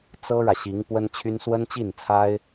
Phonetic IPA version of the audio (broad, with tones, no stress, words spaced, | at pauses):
t͡sɤ˥ɻä˨ɕi˧˥ŋ pwə˥nt͡ɕʰy˥n swə˥nt͡ɕi˥˩nt͡sʰa˥ɪ̯